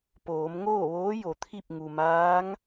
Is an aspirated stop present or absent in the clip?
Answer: present